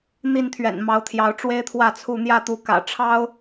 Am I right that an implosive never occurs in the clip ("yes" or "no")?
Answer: yes